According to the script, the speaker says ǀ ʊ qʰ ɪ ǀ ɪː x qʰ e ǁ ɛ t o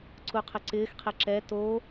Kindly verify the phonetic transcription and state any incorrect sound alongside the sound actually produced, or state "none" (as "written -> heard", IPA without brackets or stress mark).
ʊ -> u